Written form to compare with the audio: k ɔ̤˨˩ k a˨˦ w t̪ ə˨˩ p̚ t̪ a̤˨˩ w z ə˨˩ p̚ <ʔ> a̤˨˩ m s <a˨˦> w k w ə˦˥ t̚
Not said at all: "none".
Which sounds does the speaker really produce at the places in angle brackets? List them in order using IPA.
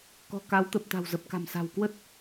k, a̤˨˩

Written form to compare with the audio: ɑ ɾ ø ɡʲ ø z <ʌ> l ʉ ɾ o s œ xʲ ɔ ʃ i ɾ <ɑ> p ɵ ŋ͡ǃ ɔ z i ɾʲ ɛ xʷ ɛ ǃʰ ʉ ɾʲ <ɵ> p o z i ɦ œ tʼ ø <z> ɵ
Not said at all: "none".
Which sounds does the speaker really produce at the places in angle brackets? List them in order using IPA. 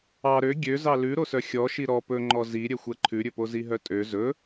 ɑ, ɔ, ɵ, z

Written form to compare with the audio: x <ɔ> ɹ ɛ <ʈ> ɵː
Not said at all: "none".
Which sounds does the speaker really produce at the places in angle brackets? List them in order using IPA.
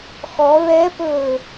ɔ, p

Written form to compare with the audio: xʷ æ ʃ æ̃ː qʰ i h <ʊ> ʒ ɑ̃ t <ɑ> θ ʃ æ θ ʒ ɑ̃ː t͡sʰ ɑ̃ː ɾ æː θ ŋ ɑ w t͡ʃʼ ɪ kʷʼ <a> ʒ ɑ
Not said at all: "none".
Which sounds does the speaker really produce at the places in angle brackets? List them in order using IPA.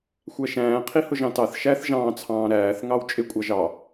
ʊ, ɑ, ɑ

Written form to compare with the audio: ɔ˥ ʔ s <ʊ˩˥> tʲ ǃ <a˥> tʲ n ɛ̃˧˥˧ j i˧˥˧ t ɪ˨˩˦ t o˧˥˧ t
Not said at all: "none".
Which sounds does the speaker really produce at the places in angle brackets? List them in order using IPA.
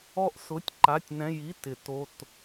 ʊ˧˥˧, a˧˥˧

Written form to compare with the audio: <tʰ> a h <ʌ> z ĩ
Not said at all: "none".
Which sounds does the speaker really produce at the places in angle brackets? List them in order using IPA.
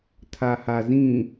tʰ, a

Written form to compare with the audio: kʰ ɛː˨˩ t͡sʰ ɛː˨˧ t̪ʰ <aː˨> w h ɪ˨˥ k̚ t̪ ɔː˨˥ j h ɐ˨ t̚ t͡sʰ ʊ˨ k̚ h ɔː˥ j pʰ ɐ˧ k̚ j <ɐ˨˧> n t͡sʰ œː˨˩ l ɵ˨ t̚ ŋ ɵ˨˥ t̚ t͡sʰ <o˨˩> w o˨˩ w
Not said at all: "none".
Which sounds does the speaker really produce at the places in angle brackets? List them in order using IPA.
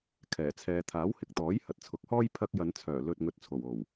aː˨˥, ɐ˨˧, o˨˩

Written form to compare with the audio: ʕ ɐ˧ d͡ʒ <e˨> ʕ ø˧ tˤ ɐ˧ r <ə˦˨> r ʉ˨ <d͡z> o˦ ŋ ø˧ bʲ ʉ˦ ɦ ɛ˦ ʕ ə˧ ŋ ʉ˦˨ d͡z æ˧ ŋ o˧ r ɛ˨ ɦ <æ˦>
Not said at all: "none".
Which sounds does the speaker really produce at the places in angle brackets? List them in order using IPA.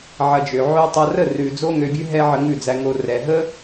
ø˨, ə˦˨, d͡z, ə˦

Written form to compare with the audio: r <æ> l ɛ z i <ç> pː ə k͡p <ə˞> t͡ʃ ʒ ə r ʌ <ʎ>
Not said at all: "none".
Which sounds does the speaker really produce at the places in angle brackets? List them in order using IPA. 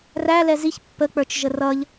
æ, ç, ə˞, ʎ

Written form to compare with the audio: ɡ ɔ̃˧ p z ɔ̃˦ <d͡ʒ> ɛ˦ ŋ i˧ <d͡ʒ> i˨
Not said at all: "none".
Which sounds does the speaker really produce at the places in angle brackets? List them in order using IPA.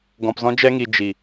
d͡ʒ, d͡ʒ

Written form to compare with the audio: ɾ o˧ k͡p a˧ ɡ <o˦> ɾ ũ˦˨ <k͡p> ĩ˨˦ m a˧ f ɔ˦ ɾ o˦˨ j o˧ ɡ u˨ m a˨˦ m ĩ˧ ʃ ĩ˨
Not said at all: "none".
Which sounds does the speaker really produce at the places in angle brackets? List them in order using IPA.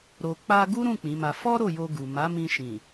u˦, k͡p

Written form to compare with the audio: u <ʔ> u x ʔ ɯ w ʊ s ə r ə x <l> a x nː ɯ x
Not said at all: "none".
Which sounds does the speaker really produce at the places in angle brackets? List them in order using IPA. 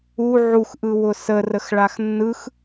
ʕ, ɭ

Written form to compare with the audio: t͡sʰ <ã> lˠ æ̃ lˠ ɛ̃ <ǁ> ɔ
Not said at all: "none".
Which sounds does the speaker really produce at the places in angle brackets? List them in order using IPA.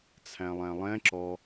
æ̃, ǁ

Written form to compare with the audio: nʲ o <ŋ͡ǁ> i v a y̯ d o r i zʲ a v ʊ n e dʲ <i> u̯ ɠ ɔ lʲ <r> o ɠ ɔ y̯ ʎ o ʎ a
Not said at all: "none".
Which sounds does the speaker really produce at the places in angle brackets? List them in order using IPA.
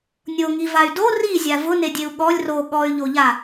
ŋ, e, r

